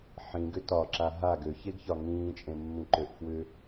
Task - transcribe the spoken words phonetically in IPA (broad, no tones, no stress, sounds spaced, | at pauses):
ħ ĩ ɡ ʏ t ɒ ǁ a ɦ a ɡ ø ç e ɡ ç ɒ ŋ ĩː t͡ʃʼ ẽ mː ĩ ǃ ø ʔ f w ʏ